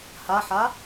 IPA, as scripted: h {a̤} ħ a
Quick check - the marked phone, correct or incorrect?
incorrect